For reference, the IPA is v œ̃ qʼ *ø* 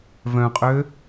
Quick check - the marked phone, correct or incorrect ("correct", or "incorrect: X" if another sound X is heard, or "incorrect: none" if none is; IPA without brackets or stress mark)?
correct